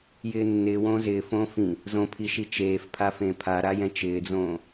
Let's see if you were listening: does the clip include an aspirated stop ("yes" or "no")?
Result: yes